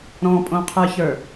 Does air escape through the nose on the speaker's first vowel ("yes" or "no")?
yes